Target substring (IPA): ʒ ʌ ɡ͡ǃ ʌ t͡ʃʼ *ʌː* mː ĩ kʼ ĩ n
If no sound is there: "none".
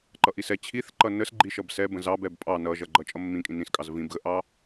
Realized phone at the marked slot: ʌ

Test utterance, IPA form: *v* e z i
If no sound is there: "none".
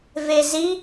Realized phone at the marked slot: v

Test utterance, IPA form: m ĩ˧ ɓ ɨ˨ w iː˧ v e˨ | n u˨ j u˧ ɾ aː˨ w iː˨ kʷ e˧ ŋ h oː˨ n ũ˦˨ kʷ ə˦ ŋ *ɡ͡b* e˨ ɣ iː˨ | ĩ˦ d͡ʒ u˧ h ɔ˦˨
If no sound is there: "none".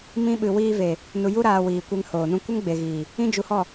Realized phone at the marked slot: ɡ͡b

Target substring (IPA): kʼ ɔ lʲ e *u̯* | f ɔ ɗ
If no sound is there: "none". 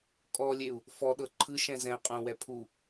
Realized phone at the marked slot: u̯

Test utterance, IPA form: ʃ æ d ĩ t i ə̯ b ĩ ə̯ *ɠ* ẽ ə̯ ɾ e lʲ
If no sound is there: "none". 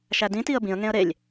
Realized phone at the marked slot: ŋ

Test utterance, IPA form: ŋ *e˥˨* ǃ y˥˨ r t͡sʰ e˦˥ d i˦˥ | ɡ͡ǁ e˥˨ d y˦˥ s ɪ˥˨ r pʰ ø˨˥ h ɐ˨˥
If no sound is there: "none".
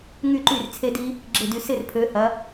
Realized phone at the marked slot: y˥˨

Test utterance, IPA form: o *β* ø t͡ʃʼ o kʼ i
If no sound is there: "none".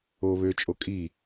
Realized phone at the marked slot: β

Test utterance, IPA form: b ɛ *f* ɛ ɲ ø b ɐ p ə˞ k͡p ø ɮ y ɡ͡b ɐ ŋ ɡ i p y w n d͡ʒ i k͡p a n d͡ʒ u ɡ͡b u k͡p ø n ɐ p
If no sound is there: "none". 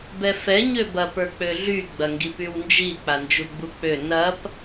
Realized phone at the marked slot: f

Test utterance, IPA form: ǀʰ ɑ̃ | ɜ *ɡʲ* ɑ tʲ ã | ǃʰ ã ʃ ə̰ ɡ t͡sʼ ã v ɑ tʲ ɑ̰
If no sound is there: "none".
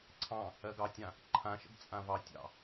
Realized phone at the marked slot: ɡ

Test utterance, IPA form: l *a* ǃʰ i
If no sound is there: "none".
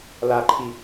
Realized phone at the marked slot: a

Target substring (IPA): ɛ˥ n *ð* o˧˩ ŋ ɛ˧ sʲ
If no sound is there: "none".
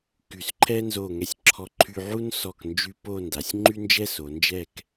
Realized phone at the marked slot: z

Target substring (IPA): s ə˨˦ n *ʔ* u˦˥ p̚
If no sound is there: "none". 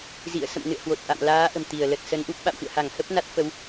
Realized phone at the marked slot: ʔ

